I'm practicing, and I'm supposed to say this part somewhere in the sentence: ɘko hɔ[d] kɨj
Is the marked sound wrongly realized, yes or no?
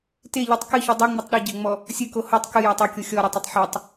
yes